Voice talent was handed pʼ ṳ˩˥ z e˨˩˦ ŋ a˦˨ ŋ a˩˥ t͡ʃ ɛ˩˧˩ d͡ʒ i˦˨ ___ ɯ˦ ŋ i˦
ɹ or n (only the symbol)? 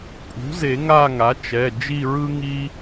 ɹ